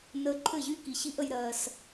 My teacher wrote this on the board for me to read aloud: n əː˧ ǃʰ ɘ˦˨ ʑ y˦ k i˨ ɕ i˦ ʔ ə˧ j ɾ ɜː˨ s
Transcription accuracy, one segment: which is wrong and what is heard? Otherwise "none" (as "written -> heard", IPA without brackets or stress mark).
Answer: none